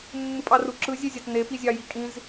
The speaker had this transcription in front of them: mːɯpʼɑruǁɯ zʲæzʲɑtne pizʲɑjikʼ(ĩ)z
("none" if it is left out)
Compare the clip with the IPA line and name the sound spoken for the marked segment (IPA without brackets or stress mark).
ĩ